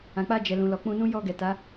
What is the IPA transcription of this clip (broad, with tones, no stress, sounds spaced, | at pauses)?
ã˨ k͡p a˧ d͡ʒ ɛ˨ l ũ˨ l ɔ˨ k͡p ũ˧ n ũ˦ j ɔ˧ ɡ ɛ˨ t a˨˦